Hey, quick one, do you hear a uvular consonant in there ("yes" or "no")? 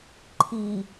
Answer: no